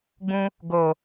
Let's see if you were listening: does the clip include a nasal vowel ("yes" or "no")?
yes